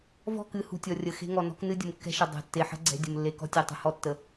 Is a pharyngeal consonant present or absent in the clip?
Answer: present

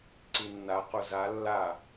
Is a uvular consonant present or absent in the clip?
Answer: present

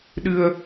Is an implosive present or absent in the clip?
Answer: present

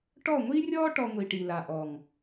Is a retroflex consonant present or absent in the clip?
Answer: present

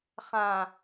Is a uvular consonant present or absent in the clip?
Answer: present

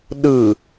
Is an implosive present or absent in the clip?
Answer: present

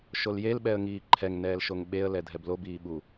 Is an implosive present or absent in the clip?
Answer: present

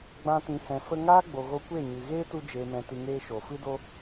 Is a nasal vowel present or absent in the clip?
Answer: present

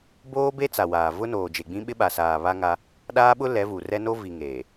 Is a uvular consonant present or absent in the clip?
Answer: absent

